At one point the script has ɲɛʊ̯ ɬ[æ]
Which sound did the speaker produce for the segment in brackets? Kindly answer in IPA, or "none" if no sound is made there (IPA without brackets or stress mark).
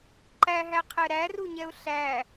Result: æ